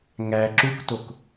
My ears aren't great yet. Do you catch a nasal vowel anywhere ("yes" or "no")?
no